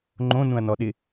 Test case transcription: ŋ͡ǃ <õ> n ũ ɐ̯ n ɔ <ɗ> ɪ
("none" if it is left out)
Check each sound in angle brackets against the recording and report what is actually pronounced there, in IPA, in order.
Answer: õ, ɗ

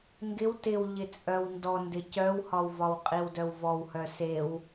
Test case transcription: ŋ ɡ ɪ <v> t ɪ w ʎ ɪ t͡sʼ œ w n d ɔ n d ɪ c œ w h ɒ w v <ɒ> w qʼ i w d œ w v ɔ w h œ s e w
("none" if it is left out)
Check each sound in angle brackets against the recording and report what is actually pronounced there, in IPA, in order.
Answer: w, ɒ

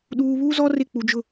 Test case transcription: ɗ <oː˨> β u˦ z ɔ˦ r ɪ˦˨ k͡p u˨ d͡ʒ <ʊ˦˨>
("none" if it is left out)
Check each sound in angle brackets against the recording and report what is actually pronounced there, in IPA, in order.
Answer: uː˨, ʊ˦˨

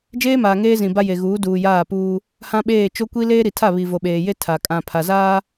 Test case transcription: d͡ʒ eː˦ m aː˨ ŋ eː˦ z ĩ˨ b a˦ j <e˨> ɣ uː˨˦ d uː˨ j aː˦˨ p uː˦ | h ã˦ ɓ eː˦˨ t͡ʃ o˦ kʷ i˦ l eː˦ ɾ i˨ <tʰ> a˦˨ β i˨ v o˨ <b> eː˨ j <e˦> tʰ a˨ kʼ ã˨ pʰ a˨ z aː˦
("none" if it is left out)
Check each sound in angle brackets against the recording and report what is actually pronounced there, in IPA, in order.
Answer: e˨, tʰ, ɓ, e˦

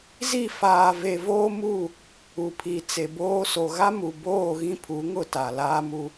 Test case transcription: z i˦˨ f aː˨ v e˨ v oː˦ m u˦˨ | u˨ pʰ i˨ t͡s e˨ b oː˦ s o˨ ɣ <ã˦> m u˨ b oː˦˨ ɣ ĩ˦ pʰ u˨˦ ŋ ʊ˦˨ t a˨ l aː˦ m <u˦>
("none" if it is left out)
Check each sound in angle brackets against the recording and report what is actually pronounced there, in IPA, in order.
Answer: a˦, u˦

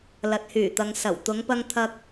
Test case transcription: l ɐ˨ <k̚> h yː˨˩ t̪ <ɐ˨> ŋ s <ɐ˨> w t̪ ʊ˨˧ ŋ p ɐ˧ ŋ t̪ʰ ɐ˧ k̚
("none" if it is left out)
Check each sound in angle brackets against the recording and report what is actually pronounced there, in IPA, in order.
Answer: t̚, ɐ˨, ɐ˨˩

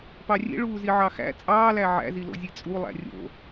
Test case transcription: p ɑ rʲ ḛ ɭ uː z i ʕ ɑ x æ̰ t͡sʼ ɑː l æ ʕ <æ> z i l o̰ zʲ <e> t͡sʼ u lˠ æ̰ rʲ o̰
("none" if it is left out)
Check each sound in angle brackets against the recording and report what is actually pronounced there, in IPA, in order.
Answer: æ̰, e

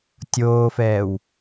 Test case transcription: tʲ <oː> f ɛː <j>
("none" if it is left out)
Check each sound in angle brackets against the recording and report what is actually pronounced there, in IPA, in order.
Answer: oː, w

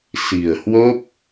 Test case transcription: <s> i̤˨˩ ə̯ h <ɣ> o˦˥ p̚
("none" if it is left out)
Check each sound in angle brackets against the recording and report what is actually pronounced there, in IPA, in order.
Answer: s, w

